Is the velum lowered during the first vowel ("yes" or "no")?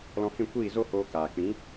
yes